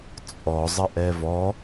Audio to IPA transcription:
t͡sʼ ɔ zˤ ə ʔ ɛ v ɔ

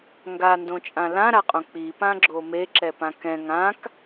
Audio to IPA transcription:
ŋ ɡ a n d õ t͡ʃʼ ã l ã ɾ a qʼ õ k͡p i p ã ɡ͡ǁ o m e ǁ ɛ p ã k ɛ̃ ŋ ã k

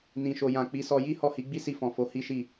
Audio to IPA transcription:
n ĩ˨ ʃ o˨ j ã˨ k͡p i˨˦ s ɔ˧ j i˦ h ɔ˦˨ h i˨˦ ɡ͡b i˦ s i˧ f ɔ̃˨ f o˨˦ h i˦ ʃ i˦˨

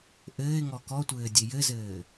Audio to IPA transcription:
ʔ ɘː ɪ̯ ŋ ɔ k ɔ tʷ ɘː dʲ e j ɘ z ɘː

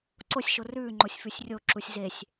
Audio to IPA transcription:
ǀ o sʲ ʃ o r ʉː ŋ͡ǃ o sʲ f ʉ sʲ rʲ o ǁ u sʲ z e sʲ

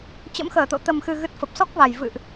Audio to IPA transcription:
t͡ɕ ə̰˧˥ m x əː˧˩ t̪ o̰˧˨ t̪ ə˨˩ m x ɨ˨˩ ɣ ɨ˨˩ t̚ f ə˨˩ p̚ s ɔ˦˥ k̚ v a˨˩ j v ɨ̰˧˨ ʔ

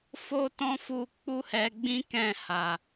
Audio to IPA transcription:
f o˦ t ɔ̃˦ f u˧ k͡p u˦ h ɛ˧ ɡ͡b ĩ˦ k ɛ̃˦˨ h a˨

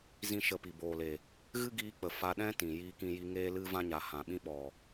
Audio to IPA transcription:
z ĩ˦ ʃ ə˧ p i˨ b oː˨ l e˨ | ɣ ɨ˦ ɡ iː˧ k͡p ə˨ f a˧ ɗ ɛ̃˦ t ĩ˨ j iː˧ k ĩ˧ j i˧ ŋ eː˦ l ɨ˦ v ã˦ ɲ a˨ h ã˨ ɓ ĩ˦ ɓ ɔ˨

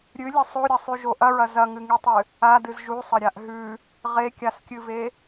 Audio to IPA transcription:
ɾʲ ɨ lʲ ɐ sˤ o ɾʲ ɐ sˤ ʉ ʒ o ʔ ɐ ɹ ɐ z ɐ ŋ ɨ ŋ i tˤ ɨ | a d ɨ z ʒ u sˤ ɐ ɾʲ a ʔ ɦ ʉ | ʁ e kʲ a s kʲ ɨ v e

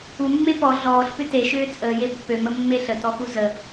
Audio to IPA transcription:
u mː e p ɔ ɮ ɔː ɬ p ʏ t e ʃ ʏː t͡sʼ əː j e pː ø m ə mː e ɬ ə t ɔ x u z ə

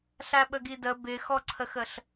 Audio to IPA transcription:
ɬ æ ɓ ə ɡ i d ə b ɪ x ɔ ǀʰ ə x ə ɬ

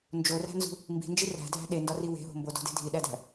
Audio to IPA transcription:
n d͡ʒ o r æ̤ n z ṳ | m b i̤ n d͡ʒ i r æ̤ dʱ æ̤ ɗ e n d ɒ r i w e̤ ɦ o̤ m b o d o̤ d e̤ dʱ i ɗ æ d æ̤

